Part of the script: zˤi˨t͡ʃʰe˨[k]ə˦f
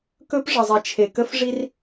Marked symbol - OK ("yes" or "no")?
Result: yes